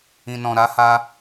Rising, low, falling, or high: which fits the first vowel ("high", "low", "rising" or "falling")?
low